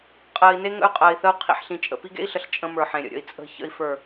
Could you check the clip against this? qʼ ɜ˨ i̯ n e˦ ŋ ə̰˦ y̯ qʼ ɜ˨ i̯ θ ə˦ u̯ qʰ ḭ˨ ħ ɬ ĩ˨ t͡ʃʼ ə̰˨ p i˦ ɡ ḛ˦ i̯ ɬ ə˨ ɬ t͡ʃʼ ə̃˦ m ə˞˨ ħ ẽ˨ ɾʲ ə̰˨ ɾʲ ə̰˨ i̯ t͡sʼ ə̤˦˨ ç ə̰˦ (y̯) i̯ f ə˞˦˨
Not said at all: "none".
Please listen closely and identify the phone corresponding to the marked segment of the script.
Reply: none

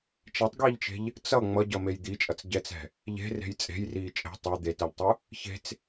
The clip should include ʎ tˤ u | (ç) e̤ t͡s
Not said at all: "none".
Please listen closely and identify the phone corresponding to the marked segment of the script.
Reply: ç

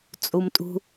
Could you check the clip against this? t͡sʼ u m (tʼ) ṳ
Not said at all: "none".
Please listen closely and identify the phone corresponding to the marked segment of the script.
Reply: tʼ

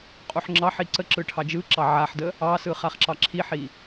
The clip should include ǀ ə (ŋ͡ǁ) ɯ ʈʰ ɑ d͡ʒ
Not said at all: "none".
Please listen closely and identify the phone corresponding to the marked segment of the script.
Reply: ǁ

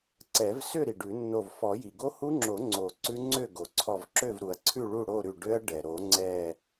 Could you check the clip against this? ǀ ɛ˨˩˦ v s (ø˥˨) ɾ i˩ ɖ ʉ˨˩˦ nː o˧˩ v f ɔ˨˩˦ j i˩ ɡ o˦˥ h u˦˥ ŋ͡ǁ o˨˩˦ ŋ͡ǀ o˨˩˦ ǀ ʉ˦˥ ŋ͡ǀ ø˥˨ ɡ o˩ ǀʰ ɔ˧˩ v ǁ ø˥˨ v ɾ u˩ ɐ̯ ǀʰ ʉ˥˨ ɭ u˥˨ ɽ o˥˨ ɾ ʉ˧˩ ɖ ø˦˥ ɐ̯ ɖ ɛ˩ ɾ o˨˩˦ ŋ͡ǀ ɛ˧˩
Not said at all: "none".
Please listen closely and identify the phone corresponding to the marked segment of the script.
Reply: ø˥˨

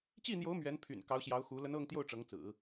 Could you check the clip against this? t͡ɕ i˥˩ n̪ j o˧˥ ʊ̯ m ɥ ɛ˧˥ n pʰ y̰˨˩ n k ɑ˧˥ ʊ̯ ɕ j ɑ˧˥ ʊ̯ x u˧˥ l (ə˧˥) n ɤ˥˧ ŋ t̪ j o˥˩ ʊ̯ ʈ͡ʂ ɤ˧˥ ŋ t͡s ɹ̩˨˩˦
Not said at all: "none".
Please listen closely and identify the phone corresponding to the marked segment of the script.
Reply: ə˧˥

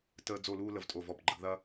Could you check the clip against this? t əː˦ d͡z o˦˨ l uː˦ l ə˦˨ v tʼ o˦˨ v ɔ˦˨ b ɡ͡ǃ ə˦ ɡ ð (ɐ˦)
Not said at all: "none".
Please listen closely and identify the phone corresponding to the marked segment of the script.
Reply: ɐ˦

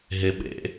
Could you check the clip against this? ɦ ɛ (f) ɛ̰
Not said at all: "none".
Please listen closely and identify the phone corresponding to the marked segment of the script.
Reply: ɓ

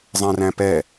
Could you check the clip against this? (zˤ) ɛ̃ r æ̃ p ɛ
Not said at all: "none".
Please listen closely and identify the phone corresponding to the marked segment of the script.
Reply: zˤ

